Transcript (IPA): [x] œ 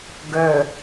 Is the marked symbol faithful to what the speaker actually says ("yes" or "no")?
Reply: no